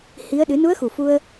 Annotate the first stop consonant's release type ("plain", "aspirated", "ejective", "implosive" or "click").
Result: implosive